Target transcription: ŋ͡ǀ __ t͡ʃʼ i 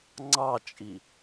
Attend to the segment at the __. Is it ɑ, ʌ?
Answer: ɑ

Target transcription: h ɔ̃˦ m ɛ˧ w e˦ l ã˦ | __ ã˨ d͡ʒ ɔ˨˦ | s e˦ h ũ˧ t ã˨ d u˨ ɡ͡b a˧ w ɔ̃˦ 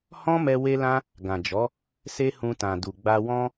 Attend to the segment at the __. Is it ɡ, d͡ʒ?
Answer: ɡ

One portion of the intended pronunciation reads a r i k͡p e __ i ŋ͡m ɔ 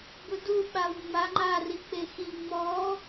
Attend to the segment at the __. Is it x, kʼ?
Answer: x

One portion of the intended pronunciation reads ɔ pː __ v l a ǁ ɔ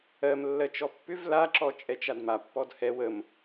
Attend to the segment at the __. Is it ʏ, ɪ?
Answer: ʏ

